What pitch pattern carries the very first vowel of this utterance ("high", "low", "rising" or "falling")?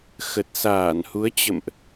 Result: low